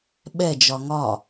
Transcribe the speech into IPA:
ɓ ɛ d͡ʒ ɒ ŋ ɒ

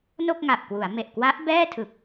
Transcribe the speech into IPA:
n o˥˩ k̚ ŋ a˨˩ ʔ k w u˩˦ a̯ m e˨˩ ʔ k w a˦˥ ʔ b ɛː˥˩ tʰ ɯ˨˩ k̚

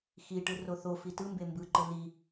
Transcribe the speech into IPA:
x i ʈ ɯ r o θ o f i t ɯ m b e m b ɯ ǃ ɯ l i

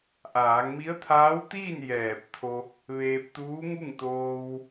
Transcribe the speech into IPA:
ʔ aː˩˧ ŋ m i˧˥ ə̯ t̪ʰ aː˧˥ w t̪ iː˥˨ n j ɛː˧˩ p̚ t̪ʰ o˧ | ʋ eː˧ p̚ t̪ uː˧˥ ŋ u˥˨ ŋ t̪ oː˧ w

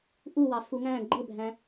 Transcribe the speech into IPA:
ʔ u w ɑ f u ŋ æ̃ ɡ͡ǃ ə bʱ æ̃

